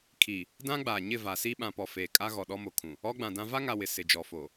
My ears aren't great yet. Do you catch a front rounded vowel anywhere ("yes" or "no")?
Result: no